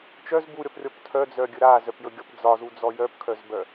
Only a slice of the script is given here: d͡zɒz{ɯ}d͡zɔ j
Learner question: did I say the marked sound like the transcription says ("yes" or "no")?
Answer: no